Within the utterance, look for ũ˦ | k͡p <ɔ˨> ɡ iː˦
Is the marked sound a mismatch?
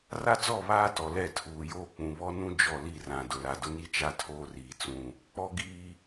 yes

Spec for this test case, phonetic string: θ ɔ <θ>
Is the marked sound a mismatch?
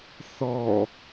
yes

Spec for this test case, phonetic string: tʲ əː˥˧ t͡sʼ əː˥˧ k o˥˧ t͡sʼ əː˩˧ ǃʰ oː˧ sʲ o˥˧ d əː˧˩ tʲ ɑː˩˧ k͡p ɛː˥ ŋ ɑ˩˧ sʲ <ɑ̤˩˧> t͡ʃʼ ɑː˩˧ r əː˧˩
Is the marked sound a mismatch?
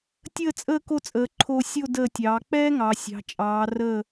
no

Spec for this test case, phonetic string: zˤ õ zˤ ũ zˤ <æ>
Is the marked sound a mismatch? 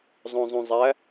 no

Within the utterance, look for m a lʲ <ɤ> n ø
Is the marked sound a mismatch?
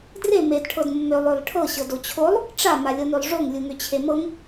no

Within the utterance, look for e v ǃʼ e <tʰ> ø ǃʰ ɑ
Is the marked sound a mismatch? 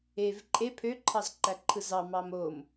yes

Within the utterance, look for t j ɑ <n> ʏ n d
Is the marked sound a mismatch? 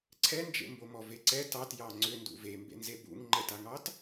yes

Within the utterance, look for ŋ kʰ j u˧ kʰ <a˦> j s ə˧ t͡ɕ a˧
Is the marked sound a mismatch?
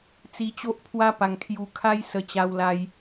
no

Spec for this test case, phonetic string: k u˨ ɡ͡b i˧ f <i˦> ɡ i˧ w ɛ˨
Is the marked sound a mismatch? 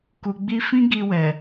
yes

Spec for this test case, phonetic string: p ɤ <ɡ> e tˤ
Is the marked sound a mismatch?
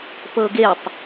no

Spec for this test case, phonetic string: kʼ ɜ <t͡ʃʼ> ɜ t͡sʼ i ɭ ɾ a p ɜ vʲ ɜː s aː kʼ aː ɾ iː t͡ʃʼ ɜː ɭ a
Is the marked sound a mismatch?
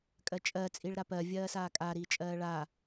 no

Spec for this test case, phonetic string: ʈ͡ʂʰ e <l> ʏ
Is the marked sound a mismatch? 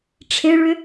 yes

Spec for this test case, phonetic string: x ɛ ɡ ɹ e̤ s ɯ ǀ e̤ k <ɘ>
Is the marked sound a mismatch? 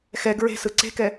yes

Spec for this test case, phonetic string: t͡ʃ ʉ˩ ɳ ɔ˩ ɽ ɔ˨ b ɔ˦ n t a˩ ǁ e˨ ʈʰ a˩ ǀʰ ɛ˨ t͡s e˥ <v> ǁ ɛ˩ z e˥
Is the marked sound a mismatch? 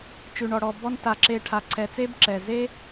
yes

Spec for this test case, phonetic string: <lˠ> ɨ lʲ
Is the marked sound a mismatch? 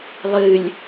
no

